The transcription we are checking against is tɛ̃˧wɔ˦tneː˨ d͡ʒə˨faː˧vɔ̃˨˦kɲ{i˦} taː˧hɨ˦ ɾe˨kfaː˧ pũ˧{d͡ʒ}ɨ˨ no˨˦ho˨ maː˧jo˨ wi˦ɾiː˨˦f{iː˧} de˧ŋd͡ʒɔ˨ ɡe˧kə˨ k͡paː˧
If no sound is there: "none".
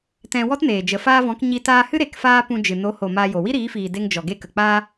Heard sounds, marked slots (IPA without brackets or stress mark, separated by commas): i˧, d͡ʒ, iː˨